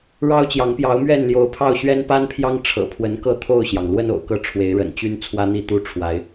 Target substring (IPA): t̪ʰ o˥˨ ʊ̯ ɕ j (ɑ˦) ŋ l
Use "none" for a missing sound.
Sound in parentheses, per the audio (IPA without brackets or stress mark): ɑ˩